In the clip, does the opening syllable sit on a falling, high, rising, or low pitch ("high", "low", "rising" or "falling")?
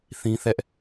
high